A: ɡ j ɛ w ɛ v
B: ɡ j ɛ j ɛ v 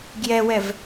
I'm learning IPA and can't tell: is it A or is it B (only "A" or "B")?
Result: A